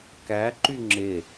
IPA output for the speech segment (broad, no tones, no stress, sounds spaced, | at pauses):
k æ ǃ y ŋ͡ǁ e